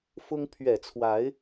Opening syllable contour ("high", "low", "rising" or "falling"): high